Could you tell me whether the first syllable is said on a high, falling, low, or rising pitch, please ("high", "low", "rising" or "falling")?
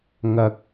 low